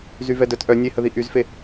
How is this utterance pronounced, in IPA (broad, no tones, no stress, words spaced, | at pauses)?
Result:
zyvɛdœt ʔœ nʲehəði ʔyzfe